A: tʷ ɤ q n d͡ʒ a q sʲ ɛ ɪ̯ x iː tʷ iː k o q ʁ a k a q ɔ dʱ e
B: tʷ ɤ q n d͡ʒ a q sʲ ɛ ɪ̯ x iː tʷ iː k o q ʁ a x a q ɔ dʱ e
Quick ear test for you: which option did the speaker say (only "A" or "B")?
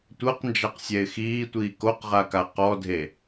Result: A